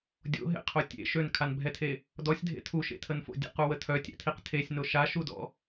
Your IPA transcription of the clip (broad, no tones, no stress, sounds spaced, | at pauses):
dʲ o̰ ɦ ḛ qʰ o tʲ ḛ ʃ ø n kʰ a n bʱ ɛ tʰ e | d ɔ sʲ dʱ ḛ tʰ u ʃ ḛ tʰ ə n f o̰ dʲ ɛ̰ q u w ə tʰ œ tʲ ɛ̰ tʰ i q tʰ e sʲ n o ʃ a ʃ u d ɔ̰